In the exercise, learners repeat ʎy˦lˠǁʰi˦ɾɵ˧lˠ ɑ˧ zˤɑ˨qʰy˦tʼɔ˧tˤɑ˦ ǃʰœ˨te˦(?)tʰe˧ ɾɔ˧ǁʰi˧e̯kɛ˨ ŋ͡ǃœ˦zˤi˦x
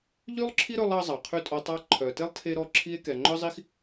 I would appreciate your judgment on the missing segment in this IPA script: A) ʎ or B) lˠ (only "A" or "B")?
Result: B